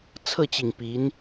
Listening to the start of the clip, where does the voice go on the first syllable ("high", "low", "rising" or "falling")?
falling